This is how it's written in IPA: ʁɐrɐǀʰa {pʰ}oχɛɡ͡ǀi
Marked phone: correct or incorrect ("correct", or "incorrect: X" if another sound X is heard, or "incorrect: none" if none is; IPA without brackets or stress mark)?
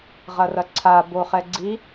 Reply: incorrect: b